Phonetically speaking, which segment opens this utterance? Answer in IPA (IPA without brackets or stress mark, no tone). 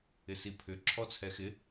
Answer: ɪ